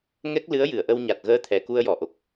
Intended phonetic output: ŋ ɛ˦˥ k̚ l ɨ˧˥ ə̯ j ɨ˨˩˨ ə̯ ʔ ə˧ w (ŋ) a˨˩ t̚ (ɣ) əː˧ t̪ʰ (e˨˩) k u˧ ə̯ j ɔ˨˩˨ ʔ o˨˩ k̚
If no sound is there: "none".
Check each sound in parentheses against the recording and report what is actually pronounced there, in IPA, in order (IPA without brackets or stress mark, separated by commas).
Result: ɲ, ɣ, ɛ˨˩